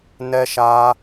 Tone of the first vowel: high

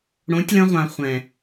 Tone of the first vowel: rising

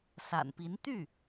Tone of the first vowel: low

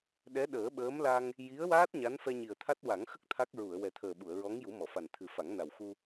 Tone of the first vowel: rising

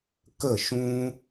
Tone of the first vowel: falling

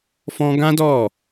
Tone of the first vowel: high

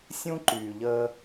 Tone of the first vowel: high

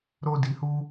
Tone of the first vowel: high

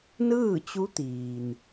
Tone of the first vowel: falling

